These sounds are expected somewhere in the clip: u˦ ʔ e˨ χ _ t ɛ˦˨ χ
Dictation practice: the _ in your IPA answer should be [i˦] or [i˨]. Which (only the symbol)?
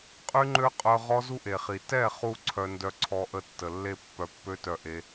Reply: i˨